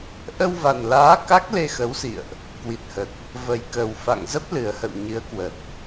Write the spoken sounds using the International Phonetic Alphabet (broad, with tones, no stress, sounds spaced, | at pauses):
ʔ ə˧ w v a˨˩ n l aː˨˦ k a˦˥ k̚ l e˧ x ə˨˦ w s ḭ˧˨ ə̯ ʔ | k w i˨˩ t̚ h ə˨˩ t̚ | v ə˨˩ j k ə˨˩ w f a̰˧˨ ŋ z ə˦˥ p̚ l ɨ˨˩ ə̯ h ə̰˧˨ w ɲ ɨ˨˦ ə̯ k w ə˨˩ t̚